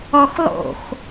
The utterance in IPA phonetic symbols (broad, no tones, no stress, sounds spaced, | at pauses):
ɔ x lˠ o̰ x